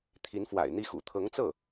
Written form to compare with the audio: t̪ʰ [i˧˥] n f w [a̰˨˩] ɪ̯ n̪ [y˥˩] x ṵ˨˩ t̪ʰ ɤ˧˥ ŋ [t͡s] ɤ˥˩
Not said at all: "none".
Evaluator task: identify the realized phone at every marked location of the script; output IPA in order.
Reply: i˧˥, a̰˨˩, i˥˩, t͡s

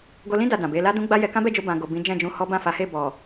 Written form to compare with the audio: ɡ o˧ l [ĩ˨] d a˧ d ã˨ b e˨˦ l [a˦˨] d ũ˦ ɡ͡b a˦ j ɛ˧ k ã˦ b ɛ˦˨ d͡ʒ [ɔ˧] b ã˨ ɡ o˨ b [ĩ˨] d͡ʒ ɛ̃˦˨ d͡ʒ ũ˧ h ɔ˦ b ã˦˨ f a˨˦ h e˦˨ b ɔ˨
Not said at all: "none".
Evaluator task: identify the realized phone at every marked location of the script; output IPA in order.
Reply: ĩ˦, a˦, o˧, ĩ˨˦

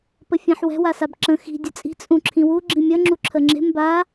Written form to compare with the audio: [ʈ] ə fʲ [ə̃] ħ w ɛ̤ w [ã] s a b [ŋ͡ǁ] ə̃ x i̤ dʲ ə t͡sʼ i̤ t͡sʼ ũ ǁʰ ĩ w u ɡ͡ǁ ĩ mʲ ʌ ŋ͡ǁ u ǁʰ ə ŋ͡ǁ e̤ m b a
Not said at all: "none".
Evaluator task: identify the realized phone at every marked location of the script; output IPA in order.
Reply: p, ã, a, ǁ

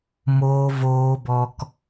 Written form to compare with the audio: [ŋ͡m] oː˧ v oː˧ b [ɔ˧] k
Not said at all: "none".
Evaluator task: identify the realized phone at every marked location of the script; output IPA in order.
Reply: m, ɔ˧

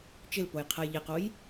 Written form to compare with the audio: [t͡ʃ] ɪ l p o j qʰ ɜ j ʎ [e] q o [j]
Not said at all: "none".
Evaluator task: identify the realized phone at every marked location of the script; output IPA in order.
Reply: t͡ʃ, e, j

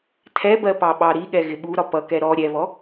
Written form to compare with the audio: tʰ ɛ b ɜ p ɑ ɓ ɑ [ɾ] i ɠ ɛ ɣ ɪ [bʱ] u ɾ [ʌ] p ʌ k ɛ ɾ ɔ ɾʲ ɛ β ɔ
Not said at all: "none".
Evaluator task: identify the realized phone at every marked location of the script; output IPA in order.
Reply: ɾ, ɓ, ɒ

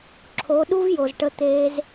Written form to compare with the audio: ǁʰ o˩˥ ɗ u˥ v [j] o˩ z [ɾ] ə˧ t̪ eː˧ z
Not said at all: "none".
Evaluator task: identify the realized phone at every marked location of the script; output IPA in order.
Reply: j, ʈ

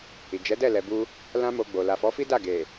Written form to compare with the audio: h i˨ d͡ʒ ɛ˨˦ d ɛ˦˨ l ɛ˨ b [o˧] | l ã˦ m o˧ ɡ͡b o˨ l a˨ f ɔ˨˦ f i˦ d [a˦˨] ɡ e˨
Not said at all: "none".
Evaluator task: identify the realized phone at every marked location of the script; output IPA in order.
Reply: u˧, a˦˨

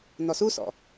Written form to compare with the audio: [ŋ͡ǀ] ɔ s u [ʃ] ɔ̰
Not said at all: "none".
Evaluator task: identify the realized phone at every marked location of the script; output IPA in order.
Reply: n, s

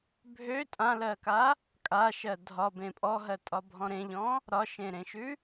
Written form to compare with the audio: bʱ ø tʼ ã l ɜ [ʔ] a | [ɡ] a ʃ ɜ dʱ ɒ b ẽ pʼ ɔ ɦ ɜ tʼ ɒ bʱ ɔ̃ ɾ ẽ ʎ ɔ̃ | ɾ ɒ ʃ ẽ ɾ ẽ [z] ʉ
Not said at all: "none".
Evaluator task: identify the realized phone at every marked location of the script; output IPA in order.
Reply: k, kʼ, ʃ

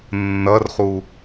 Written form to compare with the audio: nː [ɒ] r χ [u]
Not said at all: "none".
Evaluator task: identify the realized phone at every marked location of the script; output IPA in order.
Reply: ʌ, u

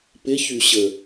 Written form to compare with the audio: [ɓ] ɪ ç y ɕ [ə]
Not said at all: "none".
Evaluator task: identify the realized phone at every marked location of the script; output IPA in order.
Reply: p, ə

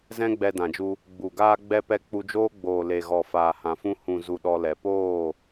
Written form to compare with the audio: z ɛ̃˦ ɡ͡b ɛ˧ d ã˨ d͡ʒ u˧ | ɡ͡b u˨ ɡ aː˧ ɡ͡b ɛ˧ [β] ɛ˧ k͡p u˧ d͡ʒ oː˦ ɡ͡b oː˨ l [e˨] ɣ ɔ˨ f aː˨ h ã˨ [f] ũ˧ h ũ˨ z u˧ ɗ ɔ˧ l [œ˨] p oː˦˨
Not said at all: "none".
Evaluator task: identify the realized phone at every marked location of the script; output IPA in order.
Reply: p, e˨, f, ɛ˨

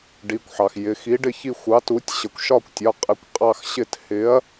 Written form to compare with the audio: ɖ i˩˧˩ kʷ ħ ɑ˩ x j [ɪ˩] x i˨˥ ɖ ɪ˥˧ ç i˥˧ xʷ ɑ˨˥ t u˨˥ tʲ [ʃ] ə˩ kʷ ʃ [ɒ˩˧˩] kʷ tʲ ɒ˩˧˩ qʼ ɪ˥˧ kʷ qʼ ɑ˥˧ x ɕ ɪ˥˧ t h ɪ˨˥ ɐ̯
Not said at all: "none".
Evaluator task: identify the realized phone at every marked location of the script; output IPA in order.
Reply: ɪ˩˧˩, ɕ, ɒ˥˧

